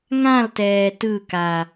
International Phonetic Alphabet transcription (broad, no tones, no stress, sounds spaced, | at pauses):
ŋ ã l t ɛː t ɯ k a